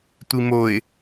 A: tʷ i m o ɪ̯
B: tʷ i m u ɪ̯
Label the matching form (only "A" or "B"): A